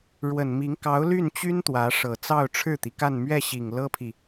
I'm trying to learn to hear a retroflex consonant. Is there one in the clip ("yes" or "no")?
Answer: yes